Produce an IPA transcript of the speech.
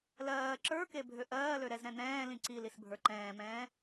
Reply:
l ɜː ǁ ə˞ k e bʱ ø ʔ ɜː l ø ɾ ɛ z ɾ ɛ̃ n̪ ɛ̃ː l ĩ ǀ i l i s bʱ ə˞ ǃ ɛ̃ː m ɛ̃ː

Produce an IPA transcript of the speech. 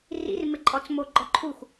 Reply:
r ḭ r m ɪ ǃʼ ɔ t͡s m o ɡ͡ǃ ɔ ǃʰ u xʷ

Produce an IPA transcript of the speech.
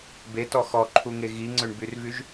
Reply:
b e t ɔ x ɔ ǃʰ u ŋ e ɣ i ŋ͡ǀ ø ɳ b y r v y ʒ

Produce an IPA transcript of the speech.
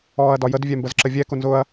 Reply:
ɔː ɐ̯ d ɒ j ə d vʲ ɛ m b ə z ǁ ə vʲ ɛ k ʊ n z ʊ ɐ̯

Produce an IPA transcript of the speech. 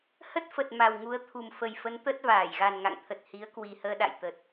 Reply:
h ə˦˥ t̚ f ə˨˩ t̚ m a˨˩ w ŋ u˨˦ ə̯ t̪ʰ u˨˩ m f ə˨˩ j f ə˨˦ n t̪ ə˦˥ t̚ v aː˧˩ j ɣ a˨˩ n ŋ a̰˧˨ ŋ t̪ʰ ə˨˩ t̚ h i˨˦ ə̯ k w i˨˩ h əː˧ ɗ a̰˧˨ j t̪ ə˨˩ t̚

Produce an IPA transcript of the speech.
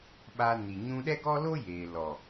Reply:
ɓ a˧ n i˨ ɲ ũ˧ ɗ ɛ˦ ɡ ɔ˦ l o˦ j eː˨ l ɔ˨

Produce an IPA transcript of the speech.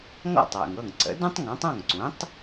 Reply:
ŋ ɔ̰˥˩ tˤ w ə̰˩ ŋ ɤ˥˩ ŋ ǀ ə̰˩˥ d ũ˥ tˤ ŋ ɔ̃˩˥ tˤ ɔ̃˥˩ ŋ ǀ ũ˩˥ tˤ

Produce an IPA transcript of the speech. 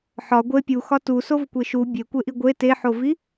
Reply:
ħ ɒ ɡʷ e pʲ u x ɒ t u s o v kʷ e ʃ u bʲ e kʷ e ʔ i ɡʷ e t e ħ o v i

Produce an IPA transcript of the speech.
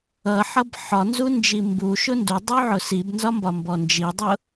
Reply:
ʌ ħ ʌ b ħ ɒ n z u n d͡ʒ i m b u ʃ ʊ n d u dˤ u ʕ ʊ s i b n z ɒ m b ɒ m b ɔ n d͡ʒ i dˤ ʊ

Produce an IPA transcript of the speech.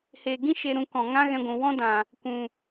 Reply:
h e˨ ɡ ĩ˦ ʃ e˧ ɾ ũ˧ k ɔ̃˨ ŋ ã˦ ɣ ɛ̃˧ ɡʷ ũ˨ w ɔ̃˦ d ã˨ | kʷ ũ˨

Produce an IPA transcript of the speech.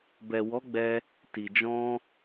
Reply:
b ɛ˨ w ɔ˨˦ ɡ͡b ɛ˦ | t i˨ d͡ʒ ɔ̃˧

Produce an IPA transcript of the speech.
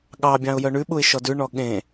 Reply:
ɠ ɑ bʲ ɑ̃ ʊ̯ j œ ɳ ʉ ɓ u ɪ̯ ʃ ɔ d ʉ ɳ ɔ ɠ ẽ

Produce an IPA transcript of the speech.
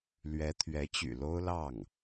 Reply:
l ɥ ɛ˧˥ t̪ʰ ɥ ɛ˧˥ t͡ɕ y̰˨˩ l o˥ ʊ̯ l ɑ˥˩ ŋ

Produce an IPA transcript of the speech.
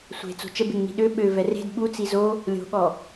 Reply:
sʷ e̤ t͡s o̤ t͡ʃ ə b e ŋ n i̤ ɗ ø ɓ ø v ɛ r e̤ d ɓ u t͡s i z o | lʲ o̤ ɠ ɔ

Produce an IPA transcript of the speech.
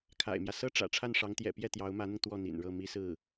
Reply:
kʰ a̰˨˩ ɪ̯ m j ä˦ s ɤ˥ ʈ͡ʂ ä̰˨˩ ʈ͡ʂʰ a˥˩ n ʂ ɑ˧˥ ŋ t̪ j ɛ̰˨˩ p j ɛ˥˩ t̪ j ɑ˧˥ ʊ̯ m ä˧˥ n̪ ʊ˧ ŋ t̪ w ɔ˥˩ n̪ ḭ˨˩ n ɻ ɤ˥˩ m i˥ s ɹ̩˥˩

